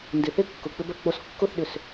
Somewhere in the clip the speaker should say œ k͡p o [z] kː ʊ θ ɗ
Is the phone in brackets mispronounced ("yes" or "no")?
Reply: yes